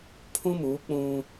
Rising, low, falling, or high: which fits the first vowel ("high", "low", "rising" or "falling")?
high